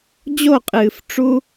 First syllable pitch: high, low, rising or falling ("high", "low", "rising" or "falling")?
falling